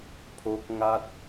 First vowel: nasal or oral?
oral